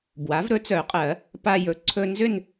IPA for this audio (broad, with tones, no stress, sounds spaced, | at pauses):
b w a˩˥ v ɾ ɵ˩˥ t͡s œ˨˩˦ qʼ ɜ˨˩˦ | p a˧ j ɵ˩˥ ǀʰ ɵ˧ n z ʏ˥˧ n